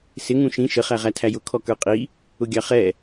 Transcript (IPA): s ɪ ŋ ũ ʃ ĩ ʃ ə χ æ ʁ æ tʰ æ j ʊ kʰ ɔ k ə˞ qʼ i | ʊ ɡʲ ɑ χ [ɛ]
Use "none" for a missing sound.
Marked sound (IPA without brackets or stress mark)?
ɛ